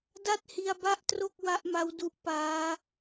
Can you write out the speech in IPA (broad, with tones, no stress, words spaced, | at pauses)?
da˥˩t̚hi˧a̯ba˥˩ʔtro˥˩k̚ wa˦˥ʔma˦˥w du˦˥ʔ paː˦˥